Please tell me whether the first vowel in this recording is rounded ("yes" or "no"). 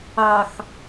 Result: no